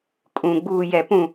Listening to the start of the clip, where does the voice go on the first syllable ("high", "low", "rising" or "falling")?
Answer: low